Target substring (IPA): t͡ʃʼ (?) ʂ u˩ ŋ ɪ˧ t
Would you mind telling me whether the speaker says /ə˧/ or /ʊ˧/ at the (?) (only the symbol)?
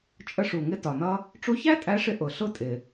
ə˧